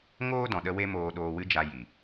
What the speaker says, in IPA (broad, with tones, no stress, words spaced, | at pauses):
ŋoː˦dɔ̃˨ ɗə˦we˦ moː˧ɗoː˧wɨ˦d͡ʒa˧ ji˨